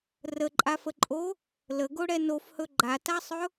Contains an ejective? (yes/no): yes